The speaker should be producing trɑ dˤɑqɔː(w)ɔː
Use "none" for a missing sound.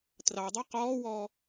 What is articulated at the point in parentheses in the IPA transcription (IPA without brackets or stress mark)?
w